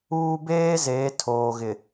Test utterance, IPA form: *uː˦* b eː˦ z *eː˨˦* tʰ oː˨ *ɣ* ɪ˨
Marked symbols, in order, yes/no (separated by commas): yes, yes, yes